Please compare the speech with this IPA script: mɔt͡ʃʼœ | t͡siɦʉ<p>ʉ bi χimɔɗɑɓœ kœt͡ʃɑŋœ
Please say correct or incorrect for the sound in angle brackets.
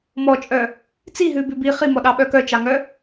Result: incorrect